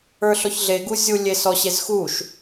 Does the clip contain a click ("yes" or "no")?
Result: no